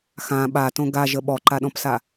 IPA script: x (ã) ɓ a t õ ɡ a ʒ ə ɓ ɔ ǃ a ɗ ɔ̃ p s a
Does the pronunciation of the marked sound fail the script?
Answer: no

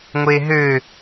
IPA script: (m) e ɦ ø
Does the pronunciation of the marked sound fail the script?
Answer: yes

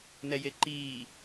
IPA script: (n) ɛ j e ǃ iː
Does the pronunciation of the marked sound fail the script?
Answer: no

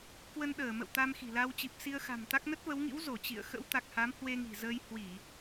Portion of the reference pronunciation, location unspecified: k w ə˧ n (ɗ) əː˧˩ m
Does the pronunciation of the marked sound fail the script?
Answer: no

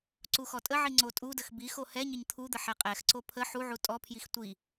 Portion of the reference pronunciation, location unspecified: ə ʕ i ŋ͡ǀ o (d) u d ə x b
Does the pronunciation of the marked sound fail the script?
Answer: yes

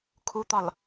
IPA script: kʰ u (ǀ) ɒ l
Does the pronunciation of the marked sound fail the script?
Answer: yes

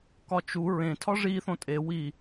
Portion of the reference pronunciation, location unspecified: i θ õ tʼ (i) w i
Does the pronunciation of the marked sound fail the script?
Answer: yes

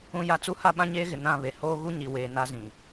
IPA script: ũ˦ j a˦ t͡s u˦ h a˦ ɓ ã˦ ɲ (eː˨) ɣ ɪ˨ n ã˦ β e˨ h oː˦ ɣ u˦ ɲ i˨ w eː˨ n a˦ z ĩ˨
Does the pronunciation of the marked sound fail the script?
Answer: yes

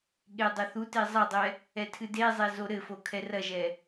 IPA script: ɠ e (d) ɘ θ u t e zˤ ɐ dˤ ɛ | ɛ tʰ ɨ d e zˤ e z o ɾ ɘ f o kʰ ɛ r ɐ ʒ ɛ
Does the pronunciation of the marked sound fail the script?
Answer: yes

